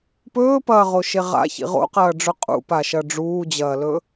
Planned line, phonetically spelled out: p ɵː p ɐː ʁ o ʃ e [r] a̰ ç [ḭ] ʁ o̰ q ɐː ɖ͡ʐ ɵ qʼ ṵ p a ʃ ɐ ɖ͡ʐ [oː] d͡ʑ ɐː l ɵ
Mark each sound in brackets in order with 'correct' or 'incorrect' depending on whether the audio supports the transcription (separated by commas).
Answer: incorrect, correct, incorrect